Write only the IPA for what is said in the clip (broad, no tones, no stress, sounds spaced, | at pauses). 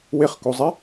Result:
w ɪ χ k o zˤ ɛ